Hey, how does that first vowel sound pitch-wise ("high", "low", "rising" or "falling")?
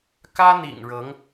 high